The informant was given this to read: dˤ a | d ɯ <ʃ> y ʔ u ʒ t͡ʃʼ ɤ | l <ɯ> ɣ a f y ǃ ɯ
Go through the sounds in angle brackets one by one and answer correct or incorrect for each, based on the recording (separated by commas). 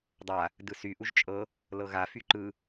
incorrect, incorrect